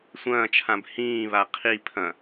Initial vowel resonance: nasal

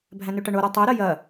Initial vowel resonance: nasal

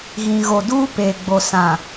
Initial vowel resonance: nasal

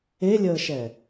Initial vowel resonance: oral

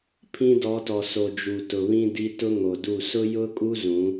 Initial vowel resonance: nasal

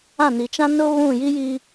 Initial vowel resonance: nasal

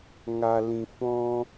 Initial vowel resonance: oral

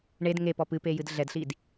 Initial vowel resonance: oral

